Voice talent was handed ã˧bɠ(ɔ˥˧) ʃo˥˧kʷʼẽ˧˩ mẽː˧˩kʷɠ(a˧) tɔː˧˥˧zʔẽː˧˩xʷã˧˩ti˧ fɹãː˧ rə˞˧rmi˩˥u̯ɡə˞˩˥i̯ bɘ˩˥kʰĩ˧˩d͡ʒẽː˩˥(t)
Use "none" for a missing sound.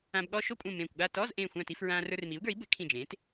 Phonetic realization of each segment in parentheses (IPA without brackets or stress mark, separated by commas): ɔ˥˧, a˥˧, t